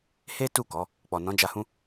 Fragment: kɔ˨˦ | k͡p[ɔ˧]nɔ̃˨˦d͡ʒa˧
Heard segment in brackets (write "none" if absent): ɔ˨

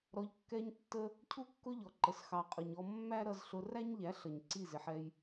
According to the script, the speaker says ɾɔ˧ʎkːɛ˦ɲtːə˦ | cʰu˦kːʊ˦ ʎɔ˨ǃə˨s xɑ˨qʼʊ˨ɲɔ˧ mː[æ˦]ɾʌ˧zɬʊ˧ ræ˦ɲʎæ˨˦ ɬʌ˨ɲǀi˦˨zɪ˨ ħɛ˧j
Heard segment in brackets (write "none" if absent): æ˦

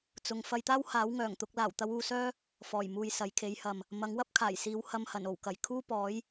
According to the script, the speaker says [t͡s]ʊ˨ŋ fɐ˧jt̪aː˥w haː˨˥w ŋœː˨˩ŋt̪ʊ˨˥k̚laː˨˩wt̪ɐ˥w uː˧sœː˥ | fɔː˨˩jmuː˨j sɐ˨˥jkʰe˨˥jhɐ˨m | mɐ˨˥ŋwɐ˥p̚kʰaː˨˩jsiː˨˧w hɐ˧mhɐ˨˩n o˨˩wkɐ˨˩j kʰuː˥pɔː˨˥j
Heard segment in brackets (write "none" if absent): t͡s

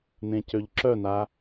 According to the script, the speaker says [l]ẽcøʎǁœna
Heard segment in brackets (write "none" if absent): n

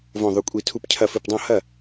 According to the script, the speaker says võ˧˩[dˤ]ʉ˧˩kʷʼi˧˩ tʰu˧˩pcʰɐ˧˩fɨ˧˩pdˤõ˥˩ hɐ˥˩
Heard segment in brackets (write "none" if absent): ðˤ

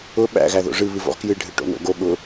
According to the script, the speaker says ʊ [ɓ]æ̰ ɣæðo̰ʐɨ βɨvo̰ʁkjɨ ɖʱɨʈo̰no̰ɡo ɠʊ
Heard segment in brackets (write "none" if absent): ɓ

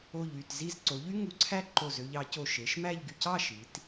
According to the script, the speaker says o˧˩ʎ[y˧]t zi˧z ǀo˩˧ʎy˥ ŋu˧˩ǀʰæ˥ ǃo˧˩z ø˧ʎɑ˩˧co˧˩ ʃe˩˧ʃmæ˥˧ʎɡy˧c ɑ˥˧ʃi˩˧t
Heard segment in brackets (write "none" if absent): y˧˩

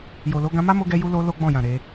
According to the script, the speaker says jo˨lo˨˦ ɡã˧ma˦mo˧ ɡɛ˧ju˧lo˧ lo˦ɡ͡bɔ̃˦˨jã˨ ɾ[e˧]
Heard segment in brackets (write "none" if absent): e˧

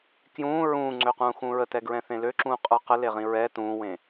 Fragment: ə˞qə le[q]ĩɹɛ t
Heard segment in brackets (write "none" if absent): ʁ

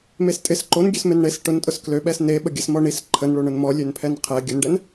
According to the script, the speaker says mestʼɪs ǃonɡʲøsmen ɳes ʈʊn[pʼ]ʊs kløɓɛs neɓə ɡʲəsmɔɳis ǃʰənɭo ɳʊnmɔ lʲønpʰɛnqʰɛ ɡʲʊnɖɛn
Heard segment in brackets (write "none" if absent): tʼ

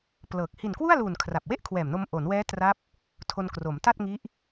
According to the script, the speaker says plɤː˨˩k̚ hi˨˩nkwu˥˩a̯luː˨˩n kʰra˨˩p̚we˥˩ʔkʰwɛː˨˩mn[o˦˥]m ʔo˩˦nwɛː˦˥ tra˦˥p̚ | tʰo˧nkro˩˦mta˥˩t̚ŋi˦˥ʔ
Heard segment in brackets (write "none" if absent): o˧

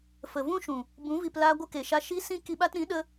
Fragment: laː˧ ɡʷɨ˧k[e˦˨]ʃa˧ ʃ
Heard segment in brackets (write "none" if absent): e˨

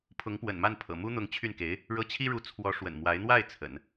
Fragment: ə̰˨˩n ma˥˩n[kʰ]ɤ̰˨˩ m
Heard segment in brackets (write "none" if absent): pʰ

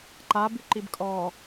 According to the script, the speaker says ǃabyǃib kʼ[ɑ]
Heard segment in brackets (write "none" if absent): ɔ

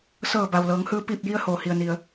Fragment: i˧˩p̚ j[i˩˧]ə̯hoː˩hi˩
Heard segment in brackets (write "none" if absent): i˧˥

